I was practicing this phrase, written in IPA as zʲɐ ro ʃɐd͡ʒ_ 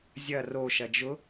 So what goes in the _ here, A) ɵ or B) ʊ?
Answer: B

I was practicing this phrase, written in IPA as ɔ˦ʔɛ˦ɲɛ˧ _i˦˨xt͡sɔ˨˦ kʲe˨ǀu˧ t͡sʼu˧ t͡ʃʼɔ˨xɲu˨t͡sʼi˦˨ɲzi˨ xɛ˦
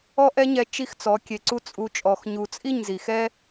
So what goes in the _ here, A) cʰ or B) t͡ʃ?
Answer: B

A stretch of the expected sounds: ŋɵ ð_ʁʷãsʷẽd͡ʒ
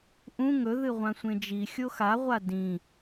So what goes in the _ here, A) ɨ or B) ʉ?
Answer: A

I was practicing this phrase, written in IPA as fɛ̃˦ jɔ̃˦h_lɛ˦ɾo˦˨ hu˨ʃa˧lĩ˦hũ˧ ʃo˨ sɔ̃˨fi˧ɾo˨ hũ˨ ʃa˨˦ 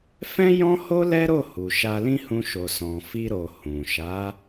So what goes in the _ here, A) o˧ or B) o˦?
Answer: B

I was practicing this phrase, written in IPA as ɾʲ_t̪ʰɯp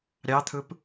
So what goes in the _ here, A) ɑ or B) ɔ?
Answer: A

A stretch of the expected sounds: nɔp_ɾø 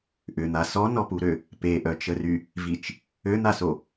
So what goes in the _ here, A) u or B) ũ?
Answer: A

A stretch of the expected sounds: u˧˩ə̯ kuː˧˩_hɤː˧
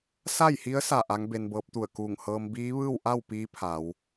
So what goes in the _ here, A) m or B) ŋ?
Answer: B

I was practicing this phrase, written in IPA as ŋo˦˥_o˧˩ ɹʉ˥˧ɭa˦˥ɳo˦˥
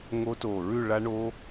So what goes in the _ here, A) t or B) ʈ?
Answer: A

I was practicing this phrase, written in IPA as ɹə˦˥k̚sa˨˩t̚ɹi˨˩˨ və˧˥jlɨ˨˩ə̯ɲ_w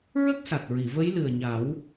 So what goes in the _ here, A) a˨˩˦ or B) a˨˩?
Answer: A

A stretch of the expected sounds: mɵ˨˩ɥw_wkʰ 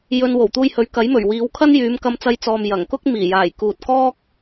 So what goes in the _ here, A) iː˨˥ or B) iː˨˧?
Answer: B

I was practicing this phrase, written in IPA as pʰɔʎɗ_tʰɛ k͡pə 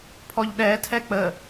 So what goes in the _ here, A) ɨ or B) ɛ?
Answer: B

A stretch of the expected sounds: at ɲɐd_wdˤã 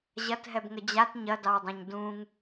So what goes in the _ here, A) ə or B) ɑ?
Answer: B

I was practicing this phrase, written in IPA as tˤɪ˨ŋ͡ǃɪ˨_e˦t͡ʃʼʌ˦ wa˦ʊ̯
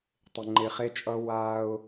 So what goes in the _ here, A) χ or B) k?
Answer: A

